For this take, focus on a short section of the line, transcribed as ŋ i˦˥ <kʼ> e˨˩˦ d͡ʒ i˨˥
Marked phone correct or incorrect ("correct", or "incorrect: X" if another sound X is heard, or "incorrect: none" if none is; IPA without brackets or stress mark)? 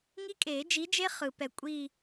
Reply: correct